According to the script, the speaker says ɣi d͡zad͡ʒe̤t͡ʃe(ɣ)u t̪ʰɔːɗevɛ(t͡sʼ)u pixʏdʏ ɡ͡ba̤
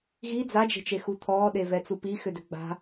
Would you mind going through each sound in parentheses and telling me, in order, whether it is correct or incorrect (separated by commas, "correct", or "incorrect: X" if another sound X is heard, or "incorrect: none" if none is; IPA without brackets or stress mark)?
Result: incorrect: x, incorrect: t͡s